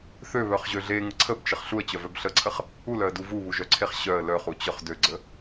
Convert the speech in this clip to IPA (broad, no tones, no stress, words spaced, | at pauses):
θøβœχʑø ɮeŋə ǀʰəbt͡ʃəχ ɬuə̯t͡ɕœvœb ɬəǀʰəχ | ulœə̯du vuβuʒœǀʰeχ ɕœə̯ lœχut͡ɕœχ døɡ͡ǀə